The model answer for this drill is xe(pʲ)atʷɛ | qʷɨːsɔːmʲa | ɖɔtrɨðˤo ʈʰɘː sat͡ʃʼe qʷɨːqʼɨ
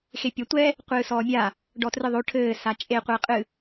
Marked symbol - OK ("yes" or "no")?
yes